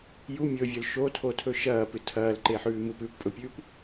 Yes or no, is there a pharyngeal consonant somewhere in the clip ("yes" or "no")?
yes